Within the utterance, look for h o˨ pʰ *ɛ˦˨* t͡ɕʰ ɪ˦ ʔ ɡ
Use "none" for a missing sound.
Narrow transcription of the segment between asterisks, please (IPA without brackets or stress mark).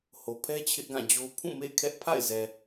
ɛ˦